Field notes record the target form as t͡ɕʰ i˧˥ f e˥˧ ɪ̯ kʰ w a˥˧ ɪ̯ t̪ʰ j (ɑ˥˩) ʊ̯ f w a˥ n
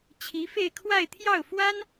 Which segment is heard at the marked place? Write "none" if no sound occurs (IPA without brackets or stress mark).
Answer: ɑ˥˩